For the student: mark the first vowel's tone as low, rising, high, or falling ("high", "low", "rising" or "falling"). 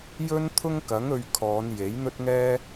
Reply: high